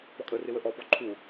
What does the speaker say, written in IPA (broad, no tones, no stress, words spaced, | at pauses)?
pɔkʼərɪ wəʔɔpɔ ǃʰu